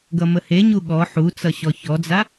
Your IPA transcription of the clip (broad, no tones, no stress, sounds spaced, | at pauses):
ɡ ʌ m ə h e ɲ u ɠ ɔ ħ u t͡s ʌ ɕ ɔ ç ɔ d͡z a